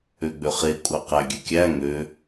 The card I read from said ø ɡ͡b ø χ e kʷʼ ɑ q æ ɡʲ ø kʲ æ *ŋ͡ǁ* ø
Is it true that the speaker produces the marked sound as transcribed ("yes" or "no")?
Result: no